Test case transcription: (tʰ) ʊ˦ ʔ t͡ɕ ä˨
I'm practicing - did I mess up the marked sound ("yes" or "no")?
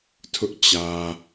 no